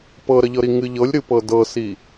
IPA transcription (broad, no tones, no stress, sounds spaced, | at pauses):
p ɤ ɾ ə ʎ ɤ ɾ i ŋ ɨ ʎ ɤ lʲ ɾ ɨ p ɤ d ɤ s i